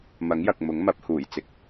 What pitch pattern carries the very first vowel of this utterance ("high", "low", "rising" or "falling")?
rising